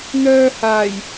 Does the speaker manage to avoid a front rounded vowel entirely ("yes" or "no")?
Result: no